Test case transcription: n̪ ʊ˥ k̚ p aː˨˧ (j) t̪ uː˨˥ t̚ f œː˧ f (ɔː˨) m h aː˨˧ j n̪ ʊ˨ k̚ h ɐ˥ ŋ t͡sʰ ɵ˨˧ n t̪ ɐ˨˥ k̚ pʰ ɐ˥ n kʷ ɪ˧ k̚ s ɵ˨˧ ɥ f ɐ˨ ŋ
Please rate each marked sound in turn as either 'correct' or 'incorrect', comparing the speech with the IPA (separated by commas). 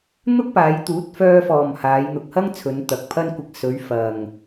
correct, correct